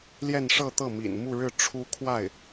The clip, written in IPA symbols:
l j ɛ˥˧ n ʂ ɤ˥˧ t̪ ɤ˥˩ m ḭ˨˩ n m u˥˧ ɻ ɻ̩˥˩ ʈ͡ʂʰ u˥ kʰ w a˥˩ ɪ̯

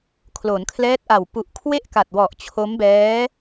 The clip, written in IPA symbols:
kʰ l o˩˦ n kʰ l ɛː˦˥ t̚ ʔ a˨˩ w p u˨˩ ʔ kʰ w e˥˩ ʔ k a˨˩ t̚ w ɔ˨˩ ʔ t͡ɕʰ o˦˥ m b ɛː˦˥

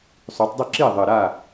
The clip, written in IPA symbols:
sˤ ʏː˩˧ tˤ dˤ ʏ˥˩ ǁ iː˥˩ ðˤ ɘ˨˩ ɾ a˥˩

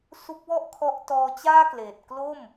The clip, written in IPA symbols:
s u˦˥ k̚ w ɔ˥˩ ʔ kʰ ɔ˦˥ ʔ t ɔː˧ t͡ɕ aː˥˩ k l eː˨˩ t̚ k l o˥˩ m

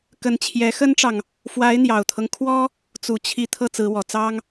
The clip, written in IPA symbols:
k ə˧˥ n t͡ɕʰ j ɛ˧˥ x ə˥ n ʈ͡ʂ ɑ˨ ŋ | f w a˧˥ ɪ̯ n̪ j ɑ˨˩ ʊ̯ t̪ʰ ɤ˦ ŋ kʰ w ɔ˥ | t͡s u˨˩ t͡ɕʰ i˧˥ t̪ʰ ɤ˥˩ t͡s ɹ̩˧˥ w ɔ˨˩ t͡s ɑ˥ ŋ

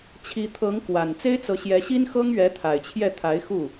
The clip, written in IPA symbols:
t͡ɕʰ i˧˥ t̪ʰ ɤ˧˥ ŋ k w a˨˩ n t͡s e˥ ɪ̯ t͡s ɤ˧˥ ɕ j ɛ˧˥ ɕ i˥ n x ɤ˥ ŋ ɥ ɛ˧˥ t̪ʰ a˨˩ ɪ̯ t͡ɕʰ j ɛ˥˩ t̪ʰ a˧˥ ɪ̯ x u˥˩

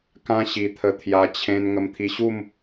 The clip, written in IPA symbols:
k ã˦ ɕ i˧ t̪ʰ ə˧ t̪ʰ j a˧ t͡ɕʰ ẽ˧ n ŋ ə˧ m t̪ʰ i˧ ɕ u˥˧ m

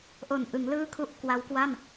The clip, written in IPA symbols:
ʔ o˨˩ n ʔ ɯ˩˦ ŋ l ɯː˥˩ kʰ u˥˩ ʔ k w a˦˥ w k w a˥˩ m

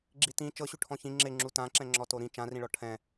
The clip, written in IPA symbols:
ɡ͡ǁ i t ĩ t͡ʃ ɤ ɕ u ʈʰ ɔ̃ ç ĩ ŋ͡ǁ e ŋ͡ǁ u t ã ǁ ɛ̃ ŋ͡ǁ ɔ t o ɾ ĩ t͡ʃ ã r ĩ ɭ ɔ ʈʰ ɛ̃

